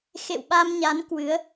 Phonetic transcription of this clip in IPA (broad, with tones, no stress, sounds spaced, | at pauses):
x ḛ˧˨ w ɓ a˧ m ɲ a˨˦ n k w ɨ˨˦ ə̯